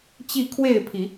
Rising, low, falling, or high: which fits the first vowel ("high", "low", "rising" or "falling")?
falling